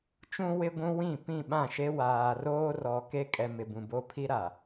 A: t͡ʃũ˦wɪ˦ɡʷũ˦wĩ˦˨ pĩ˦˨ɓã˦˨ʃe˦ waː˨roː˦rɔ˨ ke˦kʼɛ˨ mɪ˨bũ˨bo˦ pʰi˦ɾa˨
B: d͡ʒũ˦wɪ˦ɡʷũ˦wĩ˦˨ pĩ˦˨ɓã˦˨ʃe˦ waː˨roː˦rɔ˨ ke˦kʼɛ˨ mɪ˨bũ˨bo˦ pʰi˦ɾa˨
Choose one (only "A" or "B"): A